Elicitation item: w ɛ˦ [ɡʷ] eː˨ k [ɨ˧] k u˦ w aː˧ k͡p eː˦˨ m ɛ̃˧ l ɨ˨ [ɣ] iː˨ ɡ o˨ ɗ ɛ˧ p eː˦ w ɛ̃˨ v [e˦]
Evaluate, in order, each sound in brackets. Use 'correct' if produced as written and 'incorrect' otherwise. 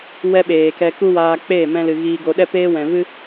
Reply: incorrect: ɓ, incorrect: ɛ˧, correct, incorrect: ɨ˦

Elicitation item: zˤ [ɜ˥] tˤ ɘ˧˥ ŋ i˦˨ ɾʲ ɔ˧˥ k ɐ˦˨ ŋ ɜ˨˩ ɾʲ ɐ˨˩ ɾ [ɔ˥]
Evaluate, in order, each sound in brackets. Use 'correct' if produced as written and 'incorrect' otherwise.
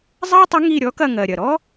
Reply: correct, correct

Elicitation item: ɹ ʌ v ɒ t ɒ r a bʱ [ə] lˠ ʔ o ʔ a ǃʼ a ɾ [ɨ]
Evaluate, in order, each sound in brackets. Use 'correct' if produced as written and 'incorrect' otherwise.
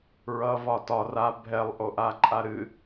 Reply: incorrect: ɛ, correct

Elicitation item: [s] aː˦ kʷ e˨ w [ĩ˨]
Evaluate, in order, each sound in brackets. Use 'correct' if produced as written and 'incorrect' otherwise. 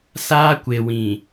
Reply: correct, correct

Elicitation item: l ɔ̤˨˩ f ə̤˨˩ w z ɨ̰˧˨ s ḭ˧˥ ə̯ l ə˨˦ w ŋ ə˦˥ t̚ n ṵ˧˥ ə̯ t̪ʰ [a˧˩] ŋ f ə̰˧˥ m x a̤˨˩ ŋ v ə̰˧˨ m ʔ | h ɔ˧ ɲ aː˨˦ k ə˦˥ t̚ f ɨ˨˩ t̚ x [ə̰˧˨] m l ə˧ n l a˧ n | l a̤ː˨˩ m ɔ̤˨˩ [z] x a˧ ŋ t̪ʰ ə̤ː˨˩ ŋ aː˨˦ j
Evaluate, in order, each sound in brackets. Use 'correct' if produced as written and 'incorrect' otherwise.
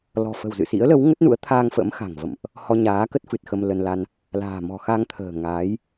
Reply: incorrect: a˧, incorrect: ə˧, incorrect: none

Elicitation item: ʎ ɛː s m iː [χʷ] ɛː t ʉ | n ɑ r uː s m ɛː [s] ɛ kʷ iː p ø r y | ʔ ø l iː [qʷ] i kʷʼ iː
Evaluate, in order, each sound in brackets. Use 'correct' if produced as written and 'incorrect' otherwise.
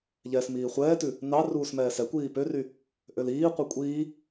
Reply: correct, correct, correct

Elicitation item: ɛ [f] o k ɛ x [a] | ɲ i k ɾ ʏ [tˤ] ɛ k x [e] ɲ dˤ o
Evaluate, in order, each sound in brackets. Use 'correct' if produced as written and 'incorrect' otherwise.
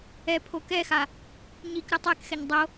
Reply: incorrect: pʰ, correct, correct, incorrect: ɛ

